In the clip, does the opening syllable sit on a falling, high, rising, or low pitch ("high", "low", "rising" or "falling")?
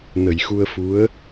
low